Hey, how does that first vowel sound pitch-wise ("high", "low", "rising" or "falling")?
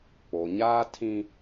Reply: low